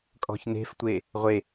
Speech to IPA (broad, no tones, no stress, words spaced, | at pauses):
kʼɔ̤çne̤ftʷe | ʁʷe